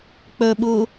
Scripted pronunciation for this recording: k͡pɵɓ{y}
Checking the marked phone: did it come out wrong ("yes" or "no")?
yes